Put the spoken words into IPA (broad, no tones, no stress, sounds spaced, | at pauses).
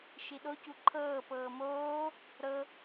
ʃ i ɗ o c u ǃʰ ɤː p ɤː m oː | ɾ ɤ